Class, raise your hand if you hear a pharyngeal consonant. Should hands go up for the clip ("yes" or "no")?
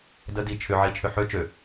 yes